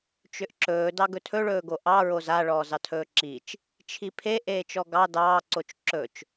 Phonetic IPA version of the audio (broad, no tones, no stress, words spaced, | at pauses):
t͡ʃʏʔǁɵː dɑɡɵtʰɵ ɭɵːɡoʔɑ ɹoza ɭɔːzɑtʰɵːǁit͡ʃ | t͡ʃʰipʰe ʔeːt͡ʃɔɡɑ dɑː ǀot͡ʃǁɵt͡ʃ